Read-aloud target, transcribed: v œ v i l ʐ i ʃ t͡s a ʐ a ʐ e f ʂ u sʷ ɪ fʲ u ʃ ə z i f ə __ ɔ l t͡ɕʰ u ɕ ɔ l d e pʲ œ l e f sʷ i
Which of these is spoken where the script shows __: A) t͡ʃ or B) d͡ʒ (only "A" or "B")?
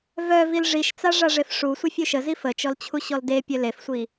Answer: A